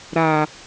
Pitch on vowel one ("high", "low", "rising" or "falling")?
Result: low